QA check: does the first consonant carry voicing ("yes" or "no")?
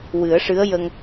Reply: yes